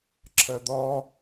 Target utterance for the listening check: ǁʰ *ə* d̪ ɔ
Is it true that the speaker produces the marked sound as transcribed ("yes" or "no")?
yes